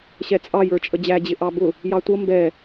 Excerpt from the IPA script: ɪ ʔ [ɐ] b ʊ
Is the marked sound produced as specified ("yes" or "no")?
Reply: no